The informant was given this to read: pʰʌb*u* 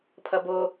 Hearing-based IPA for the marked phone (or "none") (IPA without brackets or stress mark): o